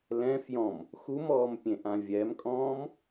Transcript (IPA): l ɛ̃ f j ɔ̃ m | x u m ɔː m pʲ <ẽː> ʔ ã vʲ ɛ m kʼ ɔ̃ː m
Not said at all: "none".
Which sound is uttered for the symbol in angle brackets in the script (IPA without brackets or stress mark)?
ẽ